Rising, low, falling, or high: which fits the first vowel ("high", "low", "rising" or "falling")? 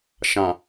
low